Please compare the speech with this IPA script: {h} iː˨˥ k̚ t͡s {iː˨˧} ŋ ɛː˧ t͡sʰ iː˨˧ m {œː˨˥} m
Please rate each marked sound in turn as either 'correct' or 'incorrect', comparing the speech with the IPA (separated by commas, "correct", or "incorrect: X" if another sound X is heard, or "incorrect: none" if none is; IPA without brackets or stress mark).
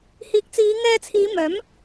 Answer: correct, correct, correct